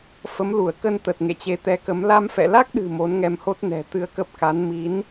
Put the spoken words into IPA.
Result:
fə˨˦m lu˧˩ə̯kə˧nt̪ə˨˩t̚ ŋḛ˧˨t͡ɕe˨˦t̪ɛ˨˦kə˨˦m la˧mfɛ̰˧˨la˦˥k̚ɗɨ̤˨˩ mo˨˦nŋɛ˧mho˦˥t̚ nɛ̤˨˩ t̪ɨ˧ə̯kə˦˥p̚ka˨˦n mi˨˦n

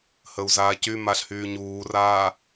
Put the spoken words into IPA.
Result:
həu̯zaːcymaɬ hyːɲuːraː

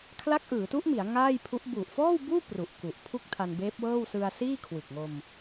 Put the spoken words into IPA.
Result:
kʰla˦˥k̚ʔɯː˩˦tu˦˥ʔmi˩˦a̯ ŋaː˥˩jpʰu˦˥ʔ bu˨˩ʔfɔː˥˩wbuː˥˩ pru˨˩ʔku˨˩ʔ pʰu˥˩k̚tʰa˧nbeː˦˥p̚wɤː˥˩w sɯ˧a̯siː˥˩ kʰwɯ˨˩k̚ŋo˧m

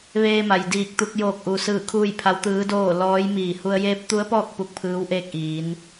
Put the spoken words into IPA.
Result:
ʋeː˧ma˩jdiː˧˩k̚t̪u˧k̚ joː˧˩k̚ʔuː˩sɯː˧˩ kʰuː˥˨jpʰa˧˥wt̪ɯː˧˥doː˥˨ lɔː˧˥j miː˧˩ hu˧ə̯ jeː˧˥p̚t̪u˧˥ə̯pɔː˥˨k̚ pu˥˨k̚pʰɯː˧˥w ʔeː˥˨k̚ʔiː˩˧n

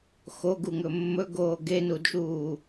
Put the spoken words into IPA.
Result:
xoɡuŋɵ mːɵɡoː ɡenudʃuː

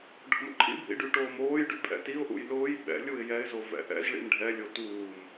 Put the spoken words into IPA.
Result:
ɖʱʊmǃʰḭbʱḭ ɖyʈoːmoːjɖy pʼɛ̰tiʊ̯ʔṵj lʊːj ɓɛ̰ lʲuɪ̯jɛɪ̯zo vɛ̰ʔɛ̰zɭḭm ɖʱɛlʲo tuːm

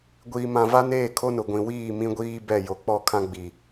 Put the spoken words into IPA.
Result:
ɡʷiː˨mã˨ va˦neː˦˨kʰo˦nʊ˨ ɡʷĩ˨wiː˦˨mĩ˦ ɡʷiː˦ bɛ˦˨ jo˨k͡pɔ˦˨kʰã˦ ɡ͡bi˨

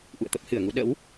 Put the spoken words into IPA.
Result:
ʔṵ˧˨ə̯t̪ə˦˥p̚hɨ˧˩ə̯ŋu˧ ɗə̰˧˥w

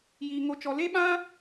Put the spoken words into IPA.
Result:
jiː˧ŋo˦t͡ʃɔ˧ le˦ɓã˦

